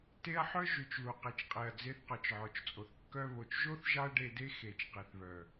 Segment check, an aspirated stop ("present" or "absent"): absent